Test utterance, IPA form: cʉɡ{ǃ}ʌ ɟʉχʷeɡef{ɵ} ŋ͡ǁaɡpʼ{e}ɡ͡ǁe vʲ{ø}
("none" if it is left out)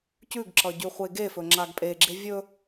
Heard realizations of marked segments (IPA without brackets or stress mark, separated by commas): ǁ, ɵ, e, ɵ